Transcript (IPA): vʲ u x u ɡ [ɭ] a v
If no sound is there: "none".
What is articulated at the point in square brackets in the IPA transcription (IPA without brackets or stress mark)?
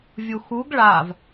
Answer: ɭ